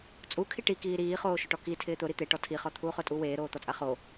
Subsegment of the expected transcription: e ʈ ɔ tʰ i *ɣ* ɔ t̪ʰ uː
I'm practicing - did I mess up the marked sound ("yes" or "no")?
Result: yes